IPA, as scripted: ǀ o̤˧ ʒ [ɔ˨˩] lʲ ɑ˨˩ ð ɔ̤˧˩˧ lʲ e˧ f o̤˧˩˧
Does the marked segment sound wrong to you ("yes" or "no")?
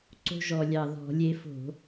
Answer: no